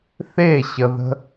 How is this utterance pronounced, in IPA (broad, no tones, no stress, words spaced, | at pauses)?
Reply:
θeɕəðə̤